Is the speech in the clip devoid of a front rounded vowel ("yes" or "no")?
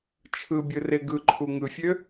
no